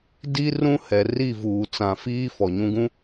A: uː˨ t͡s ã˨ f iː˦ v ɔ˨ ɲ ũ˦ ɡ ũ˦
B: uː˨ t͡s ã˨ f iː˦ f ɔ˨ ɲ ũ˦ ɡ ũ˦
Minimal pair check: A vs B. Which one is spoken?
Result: B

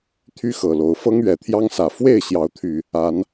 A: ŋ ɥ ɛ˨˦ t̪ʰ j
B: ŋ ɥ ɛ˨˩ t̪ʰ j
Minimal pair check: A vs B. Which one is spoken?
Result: B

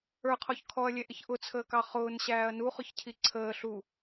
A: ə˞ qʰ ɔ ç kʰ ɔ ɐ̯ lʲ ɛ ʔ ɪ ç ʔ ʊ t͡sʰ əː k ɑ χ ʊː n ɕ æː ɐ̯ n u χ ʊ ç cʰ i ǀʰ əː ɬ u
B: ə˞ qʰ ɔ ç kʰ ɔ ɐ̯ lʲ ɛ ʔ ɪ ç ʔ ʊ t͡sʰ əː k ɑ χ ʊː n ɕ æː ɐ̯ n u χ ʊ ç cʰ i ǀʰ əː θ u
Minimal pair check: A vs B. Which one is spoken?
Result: A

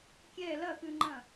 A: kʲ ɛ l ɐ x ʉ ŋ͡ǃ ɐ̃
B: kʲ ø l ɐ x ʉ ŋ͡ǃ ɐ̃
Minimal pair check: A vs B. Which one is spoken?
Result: A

